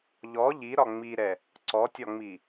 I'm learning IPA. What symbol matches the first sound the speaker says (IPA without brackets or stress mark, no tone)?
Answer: ʎ